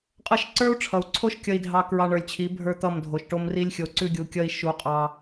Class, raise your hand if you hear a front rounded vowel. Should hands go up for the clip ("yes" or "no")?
no